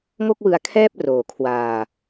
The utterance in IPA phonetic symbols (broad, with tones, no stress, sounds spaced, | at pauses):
ŋ o˥˩ k̚ w ɯ˧ a̯ kʰ ɛː˥˩ p̚ r oː˨˩ kʰ w aː˧